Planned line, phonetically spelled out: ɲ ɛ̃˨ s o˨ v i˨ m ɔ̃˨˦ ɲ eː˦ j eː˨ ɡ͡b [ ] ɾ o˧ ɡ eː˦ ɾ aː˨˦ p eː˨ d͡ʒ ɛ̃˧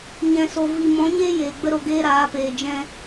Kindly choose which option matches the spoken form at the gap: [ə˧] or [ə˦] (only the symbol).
ə˦